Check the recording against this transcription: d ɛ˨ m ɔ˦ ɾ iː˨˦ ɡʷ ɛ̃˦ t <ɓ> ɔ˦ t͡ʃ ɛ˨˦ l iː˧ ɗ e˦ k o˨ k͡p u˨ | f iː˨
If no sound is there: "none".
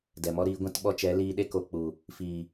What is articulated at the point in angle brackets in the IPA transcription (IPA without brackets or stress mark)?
ɓ